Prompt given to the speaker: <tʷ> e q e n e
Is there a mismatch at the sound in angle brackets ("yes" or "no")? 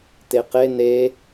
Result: yes